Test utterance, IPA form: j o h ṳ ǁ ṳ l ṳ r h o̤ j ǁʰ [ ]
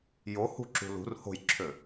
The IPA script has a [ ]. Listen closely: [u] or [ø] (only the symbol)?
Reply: ø